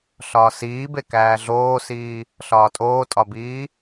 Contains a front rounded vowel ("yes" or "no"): no